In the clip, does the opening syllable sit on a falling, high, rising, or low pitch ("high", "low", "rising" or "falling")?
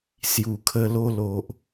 low